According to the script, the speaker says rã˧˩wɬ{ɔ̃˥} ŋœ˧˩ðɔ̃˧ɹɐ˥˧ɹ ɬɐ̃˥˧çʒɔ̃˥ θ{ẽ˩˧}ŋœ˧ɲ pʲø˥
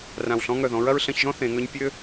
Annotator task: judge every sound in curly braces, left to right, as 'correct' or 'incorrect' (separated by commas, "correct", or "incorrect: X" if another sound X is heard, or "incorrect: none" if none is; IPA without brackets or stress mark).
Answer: correct, correct